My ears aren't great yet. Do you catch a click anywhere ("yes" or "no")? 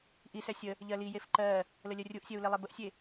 yes